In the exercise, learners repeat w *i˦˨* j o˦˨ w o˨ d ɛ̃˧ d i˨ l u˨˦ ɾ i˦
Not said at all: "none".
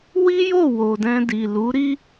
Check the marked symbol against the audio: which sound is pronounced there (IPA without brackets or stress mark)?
i˦